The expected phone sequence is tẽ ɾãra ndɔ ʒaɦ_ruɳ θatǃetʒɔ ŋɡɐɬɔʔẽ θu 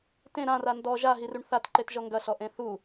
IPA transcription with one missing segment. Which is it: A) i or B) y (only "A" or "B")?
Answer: A